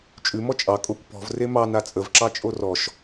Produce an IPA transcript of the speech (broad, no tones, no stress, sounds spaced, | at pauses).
t͡ʃʼ ʉ m ɔ t͡ʃʼ ɑ kʼ o kʷ p ɔ̤ v r e m ɑ n a t͡sʼ ə v ǁ ɑ t͡ʃʼ o r ɔ ʃ